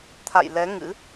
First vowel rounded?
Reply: no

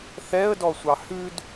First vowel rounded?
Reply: no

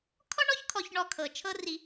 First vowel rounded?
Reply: yes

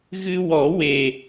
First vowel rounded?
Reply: no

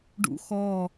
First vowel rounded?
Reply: yes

